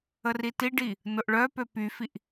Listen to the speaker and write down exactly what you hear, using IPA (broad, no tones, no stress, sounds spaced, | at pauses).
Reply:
ə r i t i ɖ i | n ʊ ʔ ɭ œ p ø p y f i ʔ